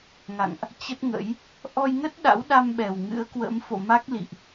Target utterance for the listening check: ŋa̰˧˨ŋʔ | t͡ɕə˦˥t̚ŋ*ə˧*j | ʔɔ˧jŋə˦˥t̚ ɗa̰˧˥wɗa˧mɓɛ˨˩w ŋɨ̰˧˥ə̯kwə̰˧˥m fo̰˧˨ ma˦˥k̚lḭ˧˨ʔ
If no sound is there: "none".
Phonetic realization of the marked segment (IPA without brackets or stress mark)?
ə̰˧˥